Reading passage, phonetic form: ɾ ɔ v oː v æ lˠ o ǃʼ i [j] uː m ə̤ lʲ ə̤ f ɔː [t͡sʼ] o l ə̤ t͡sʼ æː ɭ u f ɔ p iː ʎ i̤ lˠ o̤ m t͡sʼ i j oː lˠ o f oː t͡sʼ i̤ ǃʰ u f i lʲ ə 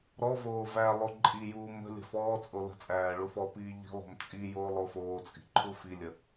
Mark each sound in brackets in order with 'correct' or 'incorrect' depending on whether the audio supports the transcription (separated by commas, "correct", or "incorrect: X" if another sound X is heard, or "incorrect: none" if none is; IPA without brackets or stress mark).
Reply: correct, correct